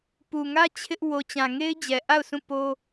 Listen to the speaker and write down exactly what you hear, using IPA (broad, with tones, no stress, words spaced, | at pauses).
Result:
pu˨ŋä˦ t͡ɕʰɪ˦ʔ wo˨t͡ɕã˨ŋe˦ɪ̯d͡ʑɛ˨ ʔa˦˨ʊ̯sʰũ˦˨ po˦